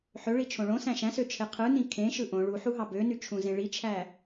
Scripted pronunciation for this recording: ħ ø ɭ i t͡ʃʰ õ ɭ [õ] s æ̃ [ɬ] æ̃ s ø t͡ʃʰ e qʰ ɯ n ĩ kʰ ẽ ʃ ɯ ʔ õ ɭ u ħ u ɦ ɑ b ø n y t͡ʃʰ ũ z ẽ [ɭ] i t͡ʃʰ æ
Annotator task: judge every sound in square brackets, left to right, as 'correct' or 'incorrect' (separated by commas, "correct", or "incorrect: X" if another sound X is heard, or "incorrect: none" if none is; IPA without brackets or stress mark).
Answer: correct, incorrect: ʃ, correct